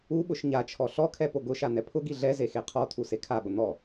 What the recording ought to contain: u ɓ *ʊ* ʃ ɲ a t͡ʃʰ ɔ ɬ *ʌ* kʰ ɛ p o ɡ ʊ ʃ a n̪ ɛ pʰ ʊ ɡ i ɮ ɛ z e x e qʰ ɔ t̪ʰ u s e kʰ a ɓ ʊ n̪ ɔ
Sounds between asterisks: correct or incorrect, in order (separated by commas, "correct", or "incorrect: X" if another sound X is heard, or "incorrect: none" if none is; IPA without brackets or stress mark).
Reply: correct, incorrect: ɔ